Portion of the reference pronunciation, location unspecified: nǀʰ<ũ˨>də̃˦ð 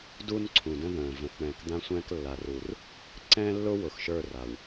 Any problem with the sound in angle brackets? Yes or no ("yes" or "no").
no